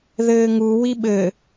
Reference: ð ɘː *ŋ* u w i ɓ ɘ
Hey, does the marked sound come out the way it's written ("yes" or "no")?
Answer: yes